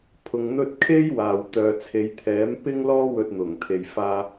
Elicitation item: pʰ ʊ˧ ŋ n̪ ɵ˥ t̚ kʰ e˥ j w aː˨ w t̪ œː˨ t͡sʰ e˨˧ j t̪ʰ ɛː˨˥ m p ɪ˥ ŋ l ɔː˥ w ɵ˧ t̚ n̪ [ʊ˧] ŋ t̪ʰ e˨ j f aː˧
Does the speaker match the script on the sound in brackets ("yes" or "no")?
no